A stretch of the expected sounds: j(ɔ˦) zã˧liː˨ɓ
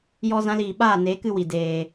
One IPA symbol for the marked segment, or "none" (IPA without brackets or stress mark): ɔ˦